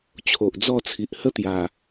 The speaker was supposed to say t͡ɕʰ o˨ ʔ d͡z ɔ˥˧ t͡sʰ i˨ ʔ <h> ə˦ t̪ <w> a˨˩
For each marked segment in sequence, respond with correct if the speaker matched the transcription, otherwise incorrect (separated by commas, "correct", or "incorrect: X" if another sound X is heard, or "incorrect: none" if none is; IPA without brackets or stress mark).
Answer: correct, incorrect: j